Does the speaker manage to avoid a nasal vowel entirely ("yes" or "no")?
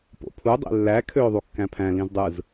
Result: no